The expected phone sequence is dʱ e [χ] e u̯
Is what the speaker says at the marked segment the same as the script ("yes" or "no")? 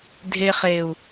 yes